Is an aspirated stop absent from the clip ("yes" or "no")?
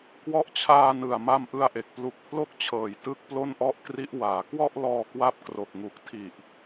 no